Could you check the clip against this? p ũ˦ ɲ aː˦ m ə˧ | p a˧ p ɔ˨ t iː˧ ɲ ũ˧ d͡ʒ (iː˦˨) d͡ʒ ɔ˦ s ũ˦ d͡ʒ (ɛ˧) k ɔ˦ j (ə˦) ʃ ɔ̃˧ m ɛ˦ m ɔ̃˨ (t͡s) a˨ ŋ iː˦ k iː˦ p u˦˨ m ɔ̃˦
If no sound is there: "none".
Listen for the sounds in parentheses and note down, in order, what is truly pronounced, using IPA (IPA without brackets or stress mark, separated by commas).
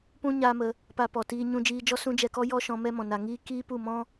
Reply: iː˧, ɛ˧, ɔ˦, n